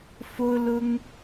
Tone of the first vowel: high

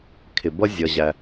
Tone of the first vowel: low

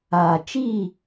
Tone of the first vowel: low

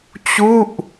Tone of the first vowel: falling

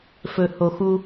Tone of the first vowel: low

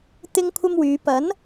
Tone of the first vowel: high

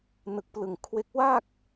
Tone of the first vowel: low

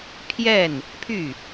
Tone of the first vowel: falling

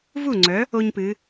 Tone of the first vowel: falling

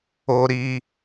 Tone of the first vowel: high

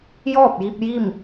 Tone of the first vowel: falling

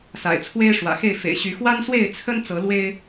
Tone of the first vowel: low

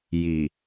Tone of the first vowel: low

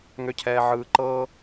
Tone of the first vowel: low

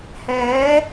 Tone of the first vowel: rising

